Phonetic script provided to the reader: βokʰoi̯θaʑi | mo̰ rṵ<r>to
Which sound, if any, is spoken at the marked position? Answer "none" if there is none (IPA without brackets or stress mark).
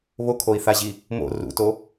none